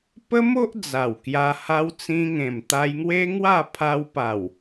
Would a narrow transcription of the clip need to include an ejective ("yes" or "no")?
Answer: no